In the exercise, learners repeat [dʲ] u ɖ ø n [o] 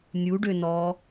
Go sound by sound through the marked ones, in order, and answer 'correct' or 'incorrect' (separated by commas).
incorrect, incorrect